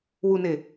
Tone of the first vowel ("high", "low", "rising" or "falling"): low